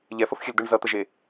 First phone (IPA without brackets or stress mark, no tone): ʎ